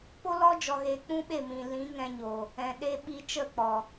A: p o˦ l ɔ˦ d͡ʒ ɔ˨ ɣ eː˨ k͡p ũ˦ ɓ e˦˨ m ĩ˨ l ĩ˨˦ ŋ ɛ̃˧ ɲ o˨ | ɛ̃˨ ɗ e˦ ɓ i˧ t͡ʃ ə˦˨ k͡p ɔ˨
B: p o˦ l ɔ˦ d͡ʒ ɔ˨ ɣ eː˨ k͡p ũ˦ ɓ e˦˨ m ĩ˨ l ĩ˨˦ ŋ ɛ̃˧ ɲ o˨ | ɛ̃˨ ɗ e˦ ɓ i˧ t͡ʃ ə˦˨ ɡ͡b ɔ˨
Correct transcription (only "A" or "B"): A